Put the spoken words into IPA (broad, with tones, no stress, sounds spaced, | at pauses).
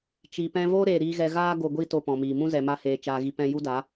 t͡ʃ i˨ p ɛ̃˧ v o˦ ɾ eː˧ ɾ iː˦ ɣ ɛ˦ ɣ aː˦ ɡ o˧ ɡʷ i˦ t o˧ p ɔ̃˨ m iː˨ m ũ˦ z ɛ˨ m a˧ h eː˨ t͡ʃ aː˧ ɣ i˧ p ɛ̃˧ j u˦ d a˨˦